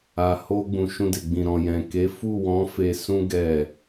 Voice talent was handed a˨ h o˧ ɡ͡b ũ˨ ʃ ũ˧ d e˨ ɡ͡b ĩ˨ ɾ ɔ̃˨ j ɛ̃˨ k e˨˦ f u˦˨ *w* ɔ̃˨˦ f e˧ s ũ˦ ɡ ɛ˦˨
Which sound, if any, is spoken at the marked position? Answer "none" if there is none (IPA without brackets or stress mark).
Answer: w